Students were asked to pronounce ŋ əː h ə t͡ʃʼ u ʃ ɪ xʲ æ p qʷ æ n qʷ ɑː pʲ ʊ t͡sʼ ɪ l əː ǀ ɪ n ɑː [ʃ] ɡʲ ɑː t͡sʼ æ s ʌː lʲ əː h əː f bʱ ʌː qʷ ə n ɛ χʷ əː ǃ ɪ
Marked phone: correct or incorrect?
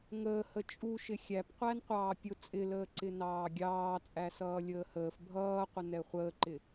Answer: incorrect